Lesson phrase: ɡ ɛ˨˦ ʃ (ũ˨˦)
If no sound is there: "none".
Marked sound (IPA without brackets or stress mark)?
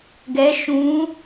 ũ˨˦